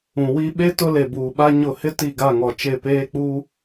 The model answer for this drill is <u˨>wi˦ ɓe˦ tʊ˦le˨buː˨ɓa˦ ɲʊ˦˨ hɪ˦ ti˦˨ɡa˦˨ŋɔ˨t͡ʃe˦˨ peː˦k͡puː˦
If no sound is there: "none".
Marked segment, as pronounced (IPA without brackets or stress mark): ũ˨